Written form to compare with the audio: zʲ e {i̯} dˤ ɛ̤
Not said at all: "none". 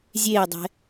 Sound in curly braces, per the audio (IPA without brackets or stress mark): i̯